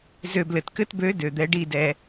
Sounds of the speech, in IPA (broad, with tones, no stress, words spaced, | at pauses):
zø˨blɘ˨tkɘ˧tbø˨˦ dø˨d̪ɛ˨˦ɖi˦˨dɛ˧